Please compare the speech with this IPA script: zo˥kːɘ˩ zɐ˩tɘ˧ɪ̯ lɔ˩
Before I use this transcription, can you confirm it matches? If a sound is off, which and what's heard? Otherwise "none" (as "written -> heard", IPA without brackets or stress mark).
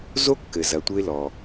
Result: t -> tʷ